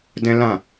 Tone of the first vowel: high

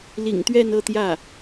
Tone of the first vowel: low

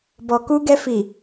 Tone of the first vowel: low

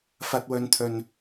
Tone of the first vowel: low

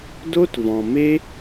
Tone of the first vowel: high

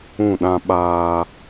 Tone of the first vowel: falling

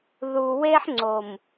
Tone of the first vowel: low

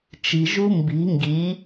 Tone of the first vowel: low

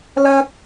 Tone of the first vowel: high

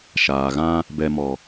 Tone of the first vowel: low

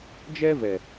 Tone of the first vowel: high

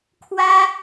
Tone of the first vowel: high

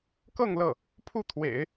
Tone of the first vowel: falling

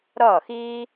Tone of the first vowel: falling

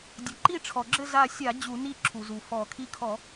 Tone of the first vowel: low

